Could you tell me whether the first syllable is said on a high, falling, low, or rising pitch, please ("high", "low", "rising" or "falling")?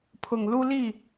low